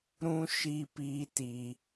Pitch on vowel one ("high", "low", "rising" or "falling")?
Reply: high